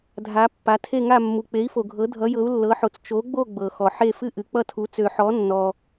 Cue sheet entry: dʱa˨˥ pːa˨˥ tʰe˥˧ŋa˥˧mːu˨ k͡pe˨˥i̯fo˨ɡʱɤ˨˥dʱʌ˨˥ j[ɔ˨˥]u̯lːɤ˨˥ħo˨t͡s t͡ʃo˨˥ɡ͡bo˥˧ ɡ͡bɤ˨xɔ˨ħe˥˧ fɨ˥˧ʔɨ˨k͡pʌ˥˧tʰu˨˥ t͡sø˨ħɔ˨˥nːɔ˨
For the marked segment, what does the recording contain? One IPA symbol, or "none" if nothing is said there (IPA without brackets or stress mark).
ɤ˨˥